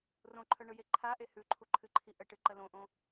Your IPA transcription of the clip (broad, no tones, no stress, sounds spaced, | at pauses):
r õ ǃʰ œ ɳ ɯ j e ǃʰ a ʔ e h ʉ ǃʰ u ǃʰ ɨ ǃʰ i ʔ ə ʈ ɨ ǃ ə l õ ʔ õ